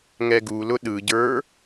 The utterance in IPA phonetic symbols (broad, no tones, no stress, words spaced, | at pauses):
ŋɛɡulʊ ɗɯɟə˞